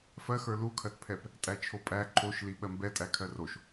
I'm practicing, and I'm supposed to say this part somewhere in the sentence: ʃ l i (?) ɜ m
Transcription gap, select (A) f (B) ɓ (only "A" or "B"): B